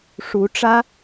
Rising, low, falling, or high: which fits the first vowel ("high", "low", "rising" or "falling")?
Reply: rising